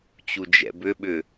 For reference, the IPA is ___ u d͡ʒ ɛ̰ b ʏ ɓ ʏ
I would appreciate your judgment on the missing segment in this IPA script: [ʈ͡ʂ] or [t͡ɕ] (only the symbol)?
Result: t͡ɕ